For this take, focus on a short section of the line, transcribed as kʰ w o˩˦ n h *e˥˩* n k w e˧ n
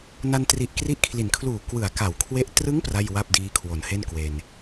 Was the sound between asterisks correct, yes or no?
yes